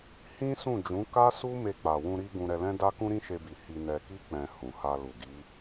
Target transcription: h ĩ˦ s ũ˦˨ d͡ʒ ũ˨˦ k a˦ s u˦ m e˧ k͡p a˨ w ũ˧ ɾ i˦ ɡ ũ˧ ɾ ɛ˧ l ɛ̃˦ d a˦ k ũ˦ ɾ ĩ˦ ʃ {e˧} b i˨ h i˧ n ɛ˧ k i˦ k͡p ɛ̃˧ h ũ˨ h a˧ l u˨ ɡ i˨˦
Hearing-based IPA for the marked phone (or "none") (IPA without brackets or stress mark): e˧